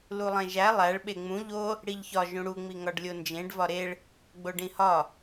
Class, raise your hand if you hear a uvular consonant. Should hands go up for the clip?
no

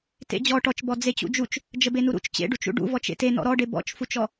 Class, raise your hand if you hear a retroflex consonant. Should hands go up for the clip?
yes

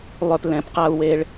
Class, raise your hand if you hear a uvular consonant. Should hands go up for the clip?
yes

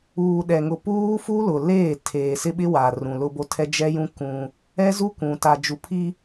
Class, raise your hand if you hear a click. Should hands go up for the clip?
no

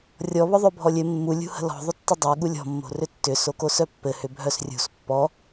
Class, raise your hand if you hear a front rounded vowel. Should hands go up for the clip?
yes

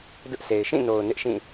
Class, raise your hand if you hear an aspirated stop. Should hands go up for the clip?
no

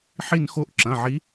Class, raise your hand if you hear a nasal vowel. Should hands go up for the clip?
yes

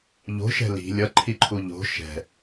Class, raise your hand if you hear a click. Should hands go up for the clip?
yes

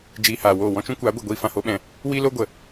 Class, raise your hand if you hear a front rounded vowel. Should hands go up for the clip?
no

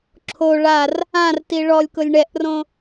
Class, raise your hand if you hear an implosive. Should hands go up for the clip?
no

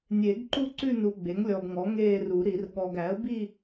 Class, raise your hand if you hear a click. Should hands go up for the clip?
yes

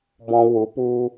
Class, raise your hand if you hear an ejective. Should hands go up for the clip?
no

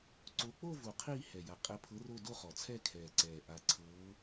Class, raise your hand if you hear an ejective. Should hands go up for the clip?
yes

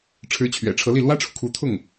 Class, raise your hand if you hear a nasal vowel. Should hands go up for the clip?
no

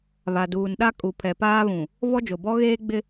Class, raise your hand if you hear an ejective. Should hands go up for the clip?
yes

